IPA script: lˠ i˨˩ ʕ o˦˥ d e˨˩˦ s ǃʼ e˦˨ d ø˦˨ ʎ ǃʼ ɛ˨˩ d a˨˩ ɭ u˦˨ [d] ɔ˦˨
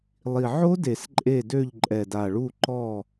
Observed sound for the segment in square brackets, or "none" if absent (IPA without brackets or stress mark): ǃ